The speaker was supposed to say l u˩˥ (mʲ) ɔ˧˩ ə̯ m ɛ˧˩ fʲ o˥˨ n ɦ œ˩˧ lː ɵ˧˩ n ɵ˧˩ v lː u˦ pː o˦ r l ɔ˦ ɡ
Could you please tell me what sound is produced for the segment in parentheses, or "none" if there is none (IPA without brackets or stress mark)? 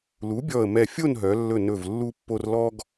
bʲ